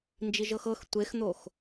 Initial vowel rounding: unrounded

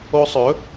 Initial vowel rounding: rounded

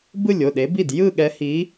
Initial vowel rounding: unrounded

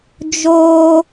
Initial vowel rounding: rounded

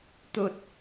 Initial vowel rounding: rounded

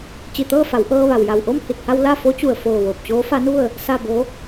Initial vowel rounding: unrounded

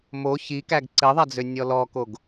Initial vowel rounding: rounded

